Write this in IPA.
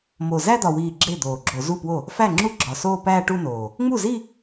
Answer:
m o˨˩ z æ˥˧ d̪ ɒ˨˩ w iː˨˩ ɡ͡ǁ e˥˩ d̪ oː˨˩ ɡ͡ǁ o˧˩˧ z u˥˩ p w o˥˩ | f æ˥˩ ŋ͡ǁ u˥˩ ɡ͡ǁ ɒ˨˩ s oː˥˧ p æː˥˧ ʈ u˥˧ n oː˨˩ | ŋ͡m u˥˩ z i˥˧

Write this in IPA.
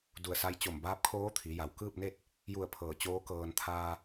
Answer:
d u˧˩ ə̯ s a˧ j t͡ɕ o˧˩ m b aː˧˥ p̚ kʰ oː˧˥ t̪ʰ i˩˧ j a˩ w k ɯː˥˨ p̚ n e˥˨ t̚ | j u˧˩ ə̯ pʰ ɤː˧˩ t͡ɕ oː˧˥ k ɤː˧ n t̪ʰ aː˧

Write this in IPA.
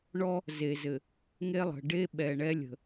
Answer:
ɳ ɔ˦ | z e˨ z ɘ˨ | ŋ e˦ lˠ ə̤˨ ɖ e˦ ɓ ɛ˨ ɳ ɛ˦ lʲ ə̤˨

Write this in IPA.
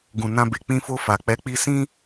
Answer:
ɡ ũ˨ n ã˧ b e˨ k͡p ĩ˧ f o˧ f a˨ k͡p ɛ˨˦ k͡p i˧ s ĩ˦

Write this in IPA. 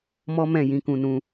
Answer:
m ɔ˦ m ɛ̃˦˨ j ĩ˨˦ k ũ˧ n ũ˧

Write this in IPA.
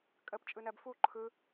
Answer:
kʼ ə p t͡ʃʼ ɯ n ɜ b f u ǃʰ ɯ

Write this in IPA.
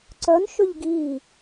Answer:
ǀ œ n ʃ ʏ ʎ ɡ iː

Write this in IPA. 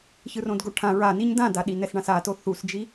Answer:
ç ɯ r õ d ɡ o ʈʰ ã ɹ a n i ɲ d ã d a ɗ i n ɛ s ɳ ã s a t o θ u s d͡ʒ i

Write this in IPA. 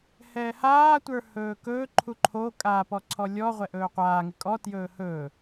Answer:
h ɛː h aː tʷ ə˞ h ɵː k ɵː ǃʰ u ǃʰ o kʼ a p ɔ ǀʰ ɔ lʲ ɔ ʁʷ ɛ ʔ ɵː qʷ aː ŋ ɪ kʼ ɔ t j ɵː h ɵː

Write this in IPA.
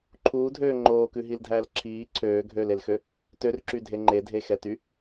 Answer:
ǃʰ uː dʱ øː ŋ͡ǃ oː k ʉ ɦ i l dʱ æː l ǁʰ iː ǀʰ øː ɡʱ øː l e l x ø | t ø r ǁ y dʱ e ŋ͡ǃ e dʱ e x ɛ t y

